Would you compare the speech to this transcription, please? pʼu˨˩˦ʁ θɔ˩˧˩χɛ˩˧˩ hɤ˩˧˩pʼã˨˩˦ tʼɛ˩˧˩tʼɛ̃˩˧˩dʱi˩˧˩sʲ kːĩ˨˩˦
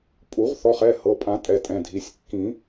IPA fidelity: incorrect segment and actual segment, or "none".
none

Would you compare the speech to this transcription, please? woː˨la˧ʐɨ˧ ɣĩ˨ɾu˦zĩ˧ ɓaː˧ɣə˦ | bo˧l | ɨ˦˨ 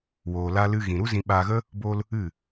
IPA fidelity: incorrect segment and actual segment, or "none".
ʐ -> l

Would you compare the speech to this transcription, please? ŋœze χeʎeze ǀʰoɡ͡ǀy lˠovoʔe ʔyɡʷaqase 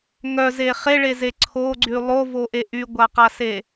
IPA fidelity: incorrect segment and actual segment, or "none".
ʎ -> ɭ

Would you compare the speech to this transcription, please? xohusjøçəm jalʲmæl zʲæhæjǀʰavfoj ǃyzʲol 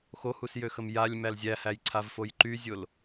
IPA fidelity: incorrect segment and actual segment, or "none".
ç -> x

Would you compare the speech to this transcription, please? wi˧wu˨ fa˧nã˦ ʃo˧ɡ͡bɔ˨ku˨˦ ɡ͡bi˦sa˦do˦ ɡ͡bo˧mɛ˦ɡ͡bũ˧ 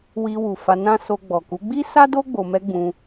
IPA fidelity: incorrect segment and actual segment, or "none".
ʃ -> s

